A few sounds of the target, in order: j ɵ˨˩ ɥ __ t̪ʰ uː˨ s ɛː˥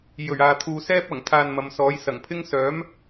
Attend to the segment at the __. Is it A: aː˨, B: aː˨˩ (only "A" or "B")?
A